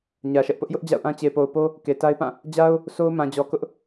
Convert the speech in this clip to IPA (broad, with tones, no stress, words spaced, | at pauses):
ɲä˨ʃɛ˦ʔ pʊ˦ʔjʊ˦ʔ d͡ʑa̰˦˨ʊ̯ʔã˦ t͡ɕe˨po˨ʊ̯po˦ | ke˨ta˦ɪ̯pã˦˨ | d͡ʑa˦ʊ̯ | sʰo˦ʊ̯mã˨d͡ʑɔ˨ kʊ˦ʔ